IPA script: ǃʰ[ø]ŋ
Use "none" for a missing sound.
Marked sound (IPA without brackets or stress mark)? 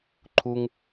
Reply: u